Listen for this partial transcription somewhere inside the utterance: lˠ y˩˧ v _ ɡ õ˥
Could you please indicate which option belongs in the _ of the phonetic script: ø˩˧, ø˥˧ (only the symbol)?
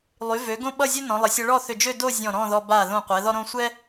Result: ø˩˧